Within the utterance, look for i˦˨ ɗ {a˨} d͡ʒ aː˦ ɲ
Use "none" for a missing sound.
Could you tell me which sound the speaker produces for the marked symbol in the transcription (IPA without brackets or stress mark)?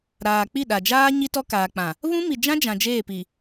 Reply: a˨